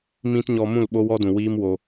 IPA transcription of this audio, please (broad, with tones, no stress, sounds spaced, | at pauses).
m ĩ˦ t ɲ ɔ˧ m ũ˦˨ l ɓ o˦ w ɔ˦ d ũ˨ w iː˦ m w o˧